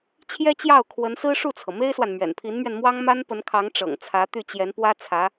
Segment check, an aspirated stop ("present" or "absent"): present